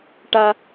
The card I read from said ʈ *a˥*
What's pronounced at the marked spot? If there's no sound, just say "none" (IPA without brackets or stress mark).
a˧